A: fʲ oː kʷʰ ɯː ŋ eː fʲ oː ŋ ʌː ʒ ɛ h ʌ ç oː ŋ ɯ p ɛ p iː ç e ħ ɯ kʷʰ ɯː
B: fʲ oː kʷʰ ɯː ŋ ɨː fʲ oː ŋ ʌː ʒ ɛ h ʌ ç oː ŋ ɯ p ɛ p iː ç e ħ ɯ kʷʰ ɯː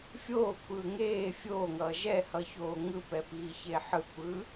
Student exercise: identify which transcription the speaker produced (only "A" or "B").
A